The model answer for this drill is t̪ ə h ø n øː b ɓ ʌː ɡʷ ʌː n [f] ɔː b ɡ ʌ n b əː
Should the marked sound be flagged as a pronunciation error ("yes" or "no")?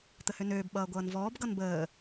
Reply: yes